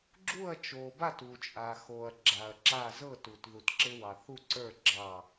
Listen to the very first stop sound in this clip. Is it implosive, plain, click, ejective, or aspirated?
click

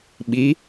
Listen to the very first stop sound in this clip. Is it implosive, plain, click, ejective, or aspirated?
implosive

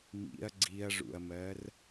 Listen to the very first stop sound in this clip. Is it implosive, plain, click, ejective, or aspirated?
click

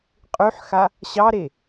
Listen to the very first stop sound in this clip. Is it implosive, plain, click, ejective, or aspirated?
ejective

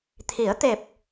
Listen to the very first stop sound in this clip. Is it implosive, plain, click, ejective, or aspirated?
aspirated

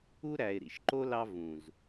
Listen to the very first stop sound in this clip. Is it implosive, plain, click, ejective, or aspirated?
click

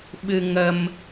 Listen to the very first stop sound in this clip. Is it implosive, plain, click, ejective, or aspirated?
implosive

